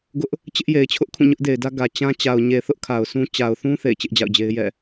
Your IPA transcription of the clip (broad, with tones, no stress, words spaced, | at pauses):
ɡʊ˦ʔ | t͡ɕɪ˦ʔ je˨ɪ̯t͡ɕʰʊ˦ʔkʰũ˦˨ ɲʊ˦ʔde˨ɪ̯dä˦ ɡä˨ t͡ɕã˦ t͡ɕa˨ʊ̯ɲe˨θʊ˦ʔ kʰa˨ʊ̯sũ˦ t͡ɕa˨ʊ̯θũ˦ θḛ˦˨ɪ̯t͡ɕɪ˦ʔd͡ʑa̰˦˨ʊ̯d͡ʑe˦ɪ̯ jɛ̰˦˨